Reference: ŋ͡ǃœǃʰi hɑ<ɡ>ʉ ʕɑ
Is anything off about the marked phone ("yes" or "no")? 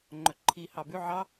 yes